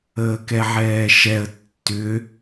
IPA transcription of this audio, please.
əː k ɛ ʕ ɛː ʃ ɛ ə̯ tː ʏ

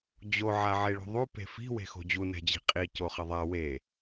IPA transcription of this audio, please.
d͡ʑ o ʕ a ʕ e ɭ o̤ ðˤ u p e̤ f i̤ w e̤ x o̤ d͡ʑ u n ɛ̤ d͡ʑ i̤ qʼ i c o χ ʌ ðˤ a w e

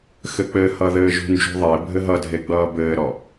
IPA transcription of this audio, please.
x ɘ k͡p ɘ h ʌ ð ɘː ʒ ṳ n d͡ʒ ṳ ðˤ e bʱ ɘ ɦ ʌ dʱ e ɡ͡b ʌː b ɘː ɾ ɔ

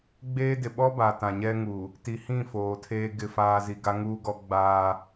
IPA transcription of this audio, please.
ɡ͡b eː˦ d ɪ˨ ɓ ɔ˦ b a˨ t ã˨ ɲ ɛ˦ ŋ u˨ | t i˨ h ĩ˦˨ f oː˨ tʰ eː˦ ɡ ɪ˦˨ f aː˨ z i˨ ɡ a˦ ŋ uː˦ ɡ ɔ˦ ɡ͡b aː˦

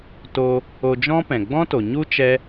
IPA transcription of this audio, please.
t o˧ | o˧ d͡ʒ ɔ̃˦ p ɛ̃˨ ɡ͡b ɔ̃˦ t o˨ ɲ u˦ t͡ʃ ɛ˦

